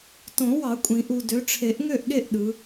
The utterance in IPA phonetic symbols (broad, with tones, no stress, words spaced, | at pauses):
tõ˨˩˦wɑ˨˩˦ kʷʼĩ˨˩˦ʔu˨dø˨˦ ʈ͡ʂʰe˨˩˦ʔŋø˦˨ʔɠe˦˨ʔ ɗɯ˨˦